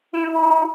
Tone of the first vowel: high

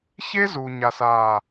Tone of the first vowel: high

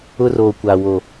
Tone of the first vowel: high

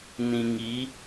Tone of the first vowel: low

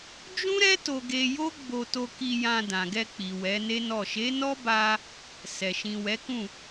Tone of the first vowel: high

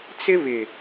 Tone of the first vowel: high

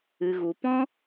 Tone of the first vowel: low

